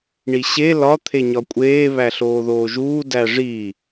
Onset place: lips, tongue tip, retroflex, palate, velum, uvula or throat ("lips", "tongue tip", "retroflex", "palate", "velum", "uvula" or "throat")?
retroflex